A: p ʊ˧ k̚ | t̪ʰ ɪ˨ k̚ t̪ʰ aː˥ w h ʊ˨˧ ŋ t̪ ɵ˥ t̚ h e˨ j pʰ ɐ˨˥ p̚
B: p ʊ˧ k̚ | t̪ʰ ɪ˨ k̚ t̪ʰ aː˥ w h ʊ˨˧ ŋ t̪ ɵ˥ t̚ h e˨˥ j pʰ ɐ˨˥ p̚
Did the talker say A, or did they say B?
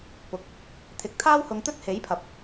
B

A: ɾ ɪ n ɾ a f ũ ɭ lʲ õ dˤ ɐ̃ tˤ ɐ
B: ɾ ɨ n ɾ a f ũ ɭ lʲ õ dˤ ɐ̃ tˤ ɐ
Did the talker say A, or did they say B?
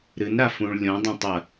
B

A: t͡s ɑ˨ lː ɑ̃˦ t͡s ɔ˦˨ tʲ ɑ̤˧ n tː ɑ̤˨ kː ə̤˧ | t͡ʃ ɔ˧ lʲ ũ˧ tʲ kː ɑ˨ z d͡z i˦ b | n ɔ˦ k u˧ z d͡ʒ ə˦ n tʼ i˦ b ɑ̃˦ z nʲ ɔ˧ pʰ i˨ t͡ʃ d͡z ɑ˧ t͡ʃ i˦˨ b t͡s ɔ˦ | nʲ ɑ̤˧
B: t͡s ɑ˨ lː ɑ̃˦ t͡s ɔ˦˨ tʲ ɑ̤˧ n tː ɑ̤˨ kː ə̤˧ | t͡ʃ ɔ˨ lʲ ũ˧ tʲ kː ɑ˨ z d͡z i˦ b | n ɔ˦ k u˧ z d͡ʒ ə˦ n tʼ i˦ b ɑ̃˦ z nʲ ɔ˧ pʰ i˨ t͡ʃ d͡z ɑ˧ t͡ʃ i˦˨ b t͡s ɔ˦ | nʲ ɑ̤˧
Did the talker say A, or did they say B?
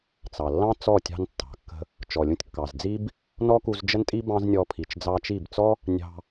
B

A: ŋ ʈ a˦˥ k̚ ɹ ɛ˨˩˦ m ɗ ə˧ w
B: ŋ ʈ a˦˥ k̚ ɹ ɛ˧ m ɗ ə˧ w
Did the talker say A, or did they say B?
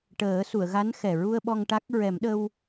A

